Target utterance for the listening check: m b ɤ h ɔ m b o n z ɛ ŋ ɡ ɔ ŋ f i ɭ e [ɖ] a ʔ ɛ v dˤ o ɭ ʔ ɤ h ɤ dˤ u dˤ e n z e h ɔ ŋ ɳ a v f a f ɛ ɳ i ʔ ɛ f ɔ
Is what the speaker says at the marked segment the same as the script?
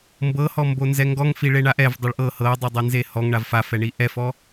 no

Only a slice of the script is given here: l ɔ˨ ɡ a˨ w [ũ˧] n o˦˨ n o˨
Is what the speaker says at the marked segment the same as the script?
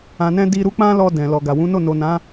no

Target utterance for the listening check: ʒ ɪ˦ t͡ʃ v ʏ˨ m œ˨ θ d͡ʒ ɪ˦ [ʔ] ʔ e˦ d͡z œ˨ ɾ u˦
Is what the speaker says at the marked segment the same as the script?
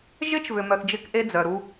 no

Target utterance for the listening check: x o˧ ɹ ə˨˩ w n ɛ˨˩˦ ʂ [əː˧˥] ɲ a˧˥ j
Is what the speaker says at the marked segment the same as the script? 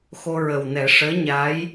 yes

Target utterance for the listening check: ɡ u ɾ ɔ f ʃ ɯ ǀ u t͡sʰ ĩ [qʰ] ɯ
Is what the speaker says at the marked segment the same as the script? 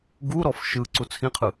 yes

